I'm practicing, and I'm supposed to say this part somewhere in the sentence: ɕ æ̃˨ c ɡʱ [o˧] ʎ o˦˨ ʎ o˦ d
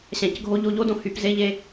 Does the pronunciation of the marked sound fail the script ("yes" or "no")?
no